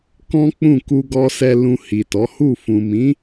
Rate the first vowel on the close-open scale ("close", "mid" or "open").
mid